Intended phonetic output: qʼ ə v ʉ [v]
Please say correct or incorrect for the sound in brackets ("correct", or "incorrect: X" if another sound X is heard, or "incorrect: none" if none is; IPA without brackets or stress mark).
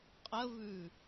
incorrect: none